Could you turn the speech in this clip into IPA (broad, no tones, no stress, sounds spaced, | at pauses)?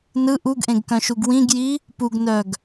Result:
n ɯ ʔ u ɡ ʔ ẽ ɡ k œ̃ ʃ u ɡ w ĩ ɡ j i | p u ɡ n œ ɡ